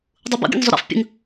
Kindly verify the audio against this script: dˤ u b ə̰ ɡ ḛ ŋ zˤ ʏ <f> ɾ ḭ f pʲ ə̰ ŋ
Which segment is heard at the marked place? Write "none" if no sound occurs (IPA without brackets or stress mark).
none